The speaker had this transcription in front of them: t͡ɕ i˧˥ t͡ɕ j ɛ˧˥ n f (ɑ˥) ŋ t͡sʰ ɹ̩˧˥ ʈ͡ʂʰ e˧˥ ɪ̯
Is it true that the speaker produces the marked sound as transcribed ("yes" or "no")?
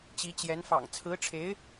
no